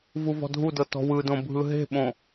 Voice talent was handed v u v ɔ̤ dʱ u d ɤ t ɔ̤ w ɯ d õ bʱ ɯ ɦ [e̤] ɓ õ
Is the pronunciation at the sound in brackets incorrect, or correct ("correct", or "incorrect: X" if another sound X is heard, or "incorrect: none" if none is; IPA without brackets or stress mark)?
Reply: correct